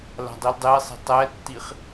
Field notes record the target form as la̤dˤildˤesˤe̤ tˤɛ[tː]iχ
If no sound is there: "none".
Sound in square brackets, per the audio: tː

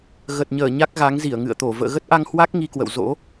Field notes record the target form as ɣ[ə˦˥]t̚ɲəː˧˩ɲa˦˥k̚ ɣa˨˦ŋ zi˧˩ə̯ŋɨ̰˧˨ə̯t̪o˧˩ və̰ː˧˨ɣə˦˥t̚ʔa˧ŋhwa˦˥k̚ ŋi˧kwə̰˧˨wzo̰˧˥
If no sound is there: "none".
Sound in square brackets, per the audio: ə˨˩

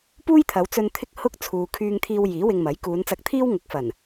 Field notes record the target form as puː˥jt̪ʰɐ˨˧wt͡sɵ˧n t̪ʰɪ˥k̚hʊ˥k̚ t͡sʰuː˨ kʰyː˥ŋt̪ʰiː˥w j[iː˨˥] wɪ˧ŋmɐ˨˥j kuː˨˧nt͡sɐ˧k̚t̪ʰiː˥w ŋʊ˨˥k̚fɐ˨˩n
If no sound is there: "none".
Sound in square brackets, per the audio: iː˨˥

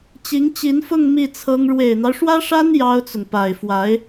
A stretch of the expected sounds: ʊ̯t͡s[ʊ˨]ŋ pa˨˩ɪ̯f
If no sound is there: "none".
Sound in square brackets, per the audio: ʊ˨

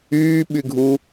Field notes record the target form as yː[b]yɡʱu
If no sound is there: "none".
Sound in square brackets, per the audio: ɓ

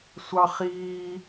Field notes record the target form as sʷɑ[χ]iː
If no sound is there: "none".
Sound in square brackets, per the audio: χ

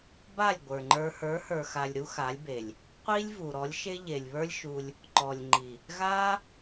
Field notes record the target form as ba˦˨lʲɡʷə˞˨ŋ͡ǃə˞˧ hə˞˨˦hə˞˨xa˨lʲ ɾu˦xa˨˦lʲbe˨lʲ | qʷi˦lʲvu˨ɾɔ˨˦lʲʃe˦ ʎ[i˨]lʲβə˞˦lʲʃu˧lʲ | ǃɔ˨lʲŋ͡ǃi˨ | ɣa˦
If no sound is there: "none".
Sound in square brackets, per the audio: e˨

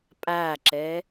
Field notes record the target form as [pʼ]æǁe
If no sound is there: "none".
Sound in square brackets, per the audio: pʼ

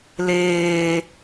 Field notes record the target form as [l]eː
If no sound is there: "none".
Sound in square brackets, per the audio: l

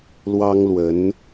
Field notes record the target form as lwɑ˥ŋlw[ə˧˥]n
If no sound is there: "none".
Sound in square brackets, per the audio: ə˧˥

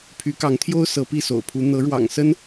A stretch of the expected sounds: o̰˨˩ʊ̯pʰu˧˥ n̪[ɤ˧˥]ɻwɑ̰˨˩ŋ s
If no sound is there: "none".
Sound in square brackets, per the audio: ɤ˧˥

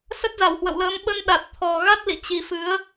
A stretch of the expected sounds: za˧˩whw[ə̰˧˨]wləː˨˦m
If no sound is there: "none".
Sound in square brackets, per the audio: ə̰˧˨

